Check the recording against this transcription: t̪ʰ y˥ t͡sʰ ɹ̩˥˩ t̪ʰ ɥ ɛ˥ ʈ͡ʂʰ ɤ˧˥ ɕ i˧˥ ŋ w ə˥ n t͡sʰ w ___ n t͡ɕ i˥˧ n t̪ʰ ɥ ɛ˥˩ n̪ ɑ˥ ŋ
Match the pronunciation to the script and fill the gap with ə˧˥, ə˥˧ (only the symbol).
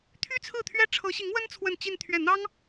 ə˥˧